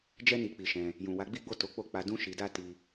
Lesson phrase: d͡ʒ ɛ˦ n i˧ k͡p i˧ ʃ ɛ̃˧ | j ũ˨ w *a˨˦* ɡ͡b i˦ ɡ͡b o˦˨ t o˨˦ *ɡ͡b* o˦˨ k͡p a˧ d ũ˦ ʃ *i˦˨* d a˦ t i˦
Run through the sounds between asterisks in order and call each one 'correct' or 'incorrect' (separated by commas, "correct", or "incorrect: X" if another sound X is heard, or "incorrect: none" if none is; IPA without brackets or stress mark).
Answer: correct, incorrect: k͡p, incorrect: i˧